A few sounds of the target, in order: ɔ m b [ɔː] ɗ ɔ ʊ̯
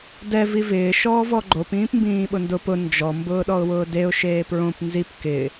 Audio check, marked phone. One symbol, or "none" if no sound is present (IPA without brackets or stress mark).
ʊː